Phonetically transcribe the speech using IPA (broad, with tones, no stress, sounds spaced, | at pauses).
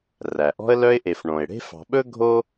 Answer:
r æ˩ ʔ ɔ̤˦ ə̯ l œ˦ ɪ̯ ʔ e˨ f ɳ õ˩ ɪ̯ ɽ e̤˦ f ɑ̤˨ ɓ ɵ˥ ɡʱ o˥